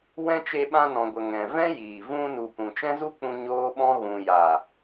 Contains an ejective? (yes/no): no